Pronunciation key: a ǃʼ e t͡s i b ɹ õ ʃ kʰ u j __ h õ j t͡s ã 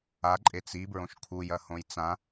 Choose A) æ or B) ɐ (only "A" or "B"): B